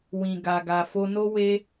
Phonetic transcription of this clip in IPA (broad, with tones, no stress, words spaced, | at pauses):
wĩ˨ɡa˨ ɡa˨fo˧no˦ we˦